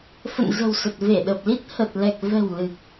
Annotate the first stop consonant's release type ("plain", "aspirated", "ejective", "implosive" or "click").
plain